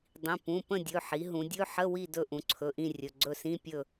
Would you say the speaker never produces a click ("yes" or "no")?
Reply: no